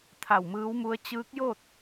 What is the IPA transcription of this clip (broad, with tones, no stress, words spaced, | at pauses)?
t̪ʰa˧˩wmɯː˧˥wmu˧˥ə̯ t͡ɕɯː˧˥k̚jo˥˨t̚